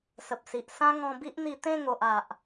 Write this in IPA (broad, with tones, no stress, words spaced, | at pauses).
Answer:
sə˨p̚si˨ʔ sã˦ŋɔ̃˧bi˦ʔn̪i˧ t̪ẽ˥˧ŋo˨ʔ a˨ʔ